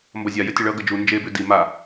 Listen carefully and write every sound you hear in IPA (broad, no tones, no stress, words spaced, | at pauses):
mbʌzʲa jətʲəɭʌ ɡəd͡ʒu nd͡ʒe bʉdi ma